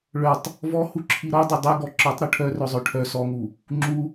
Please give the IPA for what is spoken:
ɭ œ tˤ | v ɔ h u ǁʰ i ɾ ɔ dˤ u dˤ i ɡ ɔ ǁ ɔ tˤ ɾ u ʈʰ œ r œ zˤ œ ʈʰ œ s ɔ ŋ u | ŋ͡ǁ u

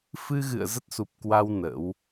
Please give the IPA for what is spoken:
f ɨ˧ ɣ ɨ̰˧˨ ə̯ z ə˦˥ t̚ s u˨˩ p̚ k w a˧ w n ə̰˧˥ w

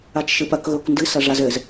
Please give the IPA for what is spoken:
a t͡ʃ ʃ ɨ p ɐ k ɣ o k n d ɨ s ɐ ʐ a z ɘ z

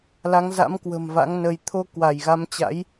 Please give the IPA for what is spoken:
l a˨˦ ŋ z a̰˧˥ m k w ə̤˨˩ m v a̰˧˥ ŋ n ə˧ j t̪ʰ o˧ k w a˧˩ j ɣ a˨˦ m t͡ɕ a̰˧˥ j

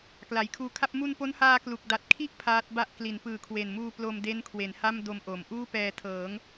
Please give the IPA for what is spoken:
k l a˩˦ j kʰ uː˧ kʰ a˥˩ p̚ m u˧ n p o˦˥ n h aː˧ k l u˨˩ k̚ d a˨˩ t̚ kʰ i˥˩ ʔ pʰ aː˦˥ t̚ b a˥˩ ʔ k l i˩˦ n p ɯː˨˩ kʰ w e˨˩ n m uː˧ p l o˧ m d e˦˥ n kʰ w e˩˦ n h a˥˩ m d o˧ m ʔ o˩˦ m ʔ uː˥˩ p ɛː˧ tʰ ɤː˩˦ ŋ

